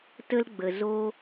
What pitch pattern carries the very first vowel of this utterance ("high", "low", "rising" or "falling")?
high